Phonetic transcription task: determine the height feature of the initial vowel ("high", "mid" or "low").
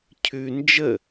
high